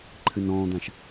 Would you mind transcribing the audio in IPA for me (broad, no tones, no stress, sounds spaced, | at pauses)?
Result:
ǃʰ ɨ n ɔ̃ː d̪ ã ʃ